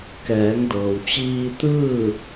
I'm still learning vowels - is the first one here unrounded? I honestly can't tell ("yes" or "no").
yes